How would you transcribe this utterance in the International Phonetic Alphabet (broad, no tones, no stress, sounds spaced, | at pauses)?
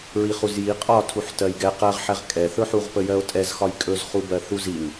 ɹ i χ u z j i qʼ ɒ tʰ u ħ t ɜ j ɡ ɛ q ɜ ʁ ħ ɛ ʁ kʼ ɛ θ ɵ ħ u ʁ p ə j ɜ o̯ tʼ ɛ z x ɒ j kʼ ɵ z χ u b ɜ θ u z i ŋ